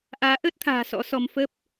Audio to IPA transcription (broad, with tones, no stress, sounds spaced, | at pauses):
ʔ aː˨˦ ʔ əː˦˥ t̚ t̪ʰ a̤ː˨˩ s ɔ̰˧˥ s ɔ˧ m f ə˦˥ p̚